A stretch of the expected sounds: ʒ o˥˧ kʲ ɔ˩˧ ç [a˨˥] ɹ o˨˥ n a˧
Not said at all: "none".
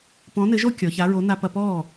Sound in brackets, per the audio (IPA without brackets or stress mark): a˨˥